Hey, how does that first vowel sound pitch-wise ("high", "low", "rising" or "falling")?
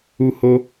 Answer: high